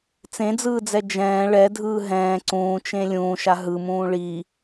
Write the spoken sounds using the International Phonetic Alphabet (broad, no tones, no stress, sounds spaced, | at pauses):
t͡s ẽ d͡z ɯː d͡z ɛ d͡ʒ ɛ̃ː ɭ ɛ dʱ ɯː ɦ ɛ̃ː ǀ ũː t͡ʃ ẽ lʲ ũː ʃ a ɦ ɯ m ũː ɭ i